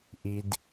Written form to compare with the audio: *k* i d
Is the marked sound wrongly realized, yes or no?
yes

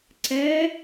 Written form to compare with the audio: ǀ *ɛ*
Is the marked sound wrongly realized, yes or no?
no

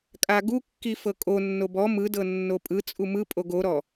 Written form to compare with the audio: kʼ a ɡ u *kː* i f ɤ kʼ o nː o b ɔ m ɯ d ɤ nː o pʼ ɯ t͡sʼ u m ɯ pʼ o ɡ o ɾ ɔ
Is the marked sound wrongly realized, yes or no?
no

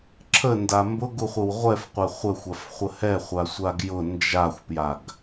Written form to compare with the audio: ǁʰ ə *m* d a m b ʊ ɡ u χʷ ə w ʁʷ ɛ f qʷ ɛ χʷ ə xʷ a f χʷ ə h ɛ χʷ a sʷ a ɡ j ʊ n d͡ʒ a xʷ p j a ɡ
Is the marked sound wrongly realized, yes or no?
yes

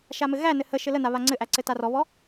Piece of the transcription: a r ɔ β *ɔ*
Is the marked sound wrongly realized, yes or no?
no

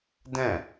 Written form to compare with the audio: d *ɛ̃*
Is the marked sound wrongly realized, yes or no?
no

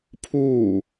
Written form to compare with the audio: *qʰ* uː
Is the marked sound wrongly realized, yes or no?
yes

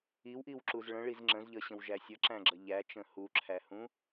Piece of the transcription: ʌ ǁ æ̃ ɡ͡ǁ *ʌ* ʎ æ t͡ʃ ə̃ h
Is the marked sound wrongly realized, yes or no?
no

